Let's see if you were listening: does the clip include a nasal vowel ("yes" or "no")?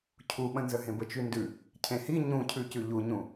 yes